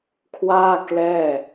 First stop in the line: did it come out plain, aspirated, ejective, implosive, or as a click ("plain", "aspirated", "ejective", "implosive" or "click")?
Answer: aspirated